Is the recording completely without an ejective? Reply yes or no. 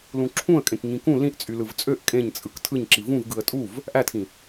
no